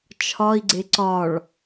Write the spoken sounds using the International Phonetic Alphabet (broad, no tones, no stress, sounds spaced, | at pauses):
t͡ʃʰ ɒ i̯ ɡ͡ǀ e ǀ ɒ ɭ